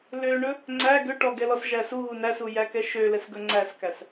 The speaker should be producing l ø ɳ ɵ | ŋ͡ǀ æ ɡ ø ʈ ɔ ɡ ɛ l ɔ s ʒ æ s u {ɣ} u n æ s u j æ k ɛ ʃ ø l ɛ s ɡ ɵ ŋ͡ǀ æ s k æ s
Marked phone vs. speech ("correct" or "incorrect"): correct